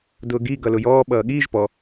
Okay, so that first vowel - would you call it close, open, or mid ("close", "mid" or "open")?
close